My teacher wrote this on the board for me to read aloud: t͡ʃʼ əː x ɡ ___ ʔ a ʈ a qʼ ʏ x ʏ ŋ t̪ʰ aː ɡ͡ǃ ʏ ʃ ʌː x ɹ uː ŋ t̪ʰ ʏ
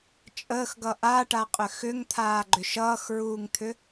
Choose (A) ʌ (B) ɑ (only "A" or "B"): A